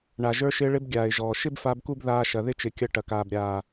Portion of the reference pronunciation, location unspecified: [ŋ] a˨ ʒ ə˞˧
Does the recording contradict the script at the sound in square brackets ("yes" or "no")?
yes